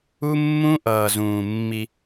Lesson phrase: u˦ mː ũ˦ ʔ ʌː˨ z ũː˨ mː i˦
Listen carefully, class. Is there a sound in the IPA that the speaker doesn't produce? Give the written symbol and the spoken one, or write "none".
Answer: none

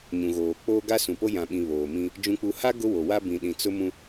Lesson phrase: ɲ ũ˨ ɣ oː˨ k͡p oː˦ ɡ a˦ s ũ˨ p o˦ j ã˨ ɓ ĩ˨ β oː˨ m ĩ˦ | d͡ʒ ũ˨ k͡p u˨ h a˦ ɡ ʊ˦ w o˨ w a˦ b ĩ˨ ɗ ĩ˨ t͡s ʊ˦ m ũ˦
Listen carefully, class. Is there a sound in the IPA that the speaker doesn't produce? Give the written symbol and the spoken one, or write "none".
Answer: none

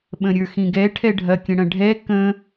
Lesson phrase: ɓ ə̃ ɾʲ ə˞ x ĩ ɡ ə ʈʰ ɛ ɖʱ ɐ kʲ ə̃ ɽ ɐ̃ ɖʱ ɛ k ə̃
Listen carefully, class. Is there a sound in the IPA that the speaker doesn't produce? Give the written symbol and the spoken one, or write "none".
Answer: ə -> ɛ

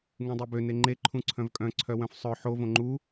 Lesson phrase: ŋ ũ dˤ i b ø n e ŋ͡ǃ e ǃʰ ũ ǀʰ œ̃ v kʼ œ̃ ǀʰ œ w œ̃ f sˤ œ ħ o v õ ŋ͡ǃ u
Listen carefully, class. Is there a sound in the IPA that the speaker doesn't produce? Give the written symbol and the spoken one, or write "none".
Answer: none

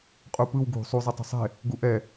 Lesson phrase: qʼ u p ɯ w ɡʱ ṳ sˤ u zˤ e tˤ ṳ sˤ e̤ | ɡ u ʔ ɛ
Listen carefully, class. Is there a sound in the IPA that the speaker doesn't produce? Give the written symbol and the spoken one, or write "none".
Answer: none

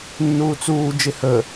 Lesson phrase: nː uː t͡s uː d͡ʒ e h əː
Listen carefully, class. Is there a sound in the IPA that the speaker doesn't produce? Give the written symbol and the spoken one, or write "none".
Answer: none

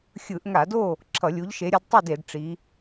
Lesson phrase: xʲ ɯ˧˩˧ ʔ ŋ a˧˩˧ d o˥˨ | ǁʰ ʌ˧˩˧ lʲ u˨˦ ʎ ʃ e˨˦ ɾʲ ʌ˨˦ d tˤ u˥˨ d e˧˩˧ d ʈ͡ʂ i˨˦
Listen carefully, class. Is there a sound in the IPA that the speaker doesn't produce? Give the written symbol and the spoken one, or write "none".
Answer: none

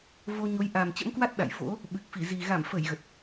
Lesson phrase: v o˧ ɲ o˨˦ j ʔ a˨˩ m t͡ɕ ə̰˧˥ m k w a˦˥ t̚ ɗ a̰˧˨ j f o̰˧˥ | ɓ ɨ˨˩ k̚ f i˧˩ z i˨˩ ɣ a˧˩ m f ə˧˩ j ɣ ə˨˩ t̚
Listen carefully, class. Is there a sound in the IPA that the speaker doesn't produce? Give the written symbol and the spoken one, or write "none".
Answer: none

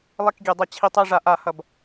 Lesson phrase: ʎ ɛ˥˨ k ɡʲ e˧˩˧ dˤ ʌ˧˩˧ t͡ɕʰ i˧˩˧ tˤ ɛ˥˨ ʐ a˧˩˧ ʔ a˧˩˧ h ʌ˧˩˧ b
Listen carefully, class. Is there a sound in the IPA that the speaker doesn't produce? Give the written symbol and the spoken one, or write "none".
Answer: ʎ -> lˠ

